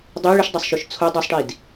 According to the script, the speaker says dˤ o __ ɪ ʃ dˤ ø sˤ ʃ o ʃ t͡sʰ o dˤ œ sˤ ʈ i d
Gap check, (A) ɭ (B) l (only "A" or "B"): A